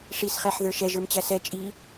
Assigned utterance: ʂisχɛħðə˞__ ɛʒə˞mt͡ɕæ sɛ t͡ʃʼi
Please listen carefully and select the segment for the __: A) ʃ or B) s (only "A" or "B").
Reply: A